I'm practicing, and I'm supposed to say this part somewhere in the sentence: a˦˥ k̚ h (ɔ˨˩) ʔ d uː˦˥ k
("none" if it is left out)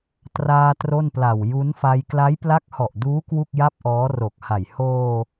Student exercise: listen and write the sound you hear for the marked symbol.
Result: ɔ˨˩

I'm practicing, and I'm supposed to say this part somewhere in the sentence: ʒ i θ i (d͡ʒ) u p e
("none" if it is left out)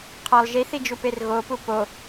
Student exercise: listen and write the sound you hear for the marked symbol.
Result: d͡ʒ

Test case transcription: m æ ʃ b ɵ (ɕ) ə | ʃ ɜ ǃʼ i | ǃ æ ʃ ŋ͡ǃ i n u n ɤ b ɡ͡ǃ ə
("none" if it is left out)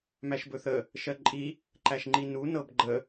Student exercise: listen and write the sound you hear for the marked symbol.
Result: θ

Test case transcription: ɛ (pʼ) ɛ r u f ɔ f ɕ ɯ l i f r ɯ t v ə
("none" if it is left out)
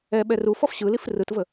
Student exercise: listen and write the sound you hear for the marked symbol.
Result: ɓ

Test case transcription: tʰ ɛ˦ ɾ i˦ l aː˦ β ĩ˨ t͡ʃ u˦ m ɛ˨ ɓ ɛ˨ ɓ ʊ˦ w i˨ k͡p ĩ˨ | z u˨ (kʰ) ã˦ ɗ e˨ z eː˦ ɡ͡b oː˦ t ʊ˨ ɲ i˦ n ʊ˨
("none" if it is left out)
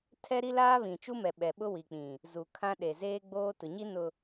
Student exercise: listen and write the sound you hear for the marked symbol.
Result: kʰ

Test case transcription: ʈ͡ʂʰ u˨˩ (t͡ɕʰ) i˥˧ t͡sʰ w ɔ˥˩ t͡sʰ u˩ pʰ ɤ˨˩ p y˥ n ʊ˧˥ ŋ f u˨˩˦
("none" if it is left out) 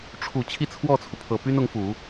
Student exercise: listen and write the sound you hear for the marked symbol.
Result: t͡ɕʰ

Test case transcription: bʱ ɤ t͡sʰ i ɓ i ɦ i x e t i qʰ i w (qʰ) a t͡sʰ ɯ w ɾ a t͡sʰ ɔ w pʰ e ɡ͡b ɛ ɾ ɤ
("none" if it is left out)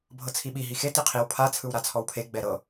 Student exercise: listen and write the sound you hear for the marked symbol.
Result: pʰ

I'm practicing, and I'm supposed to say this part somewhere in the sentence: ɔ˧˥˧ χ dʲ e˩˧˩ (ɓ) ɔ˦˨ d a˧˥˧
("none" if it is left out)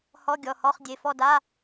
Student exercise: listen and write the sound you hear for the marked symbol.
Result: f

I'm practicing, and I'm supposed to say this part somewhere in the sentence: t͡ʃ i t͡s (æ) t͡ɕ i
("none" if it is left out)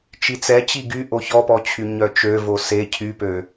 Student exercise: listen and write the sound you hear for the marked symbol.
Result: ɛ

